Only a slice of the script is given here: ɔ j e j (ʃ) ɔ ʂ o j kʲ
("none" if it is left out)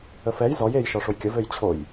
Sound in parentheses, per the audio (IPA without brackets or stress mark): ʃ